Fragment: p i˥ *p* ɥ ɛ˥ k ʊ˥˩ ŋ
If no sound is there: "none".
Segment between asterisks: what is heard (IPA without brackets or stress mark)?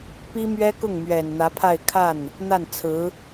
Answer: m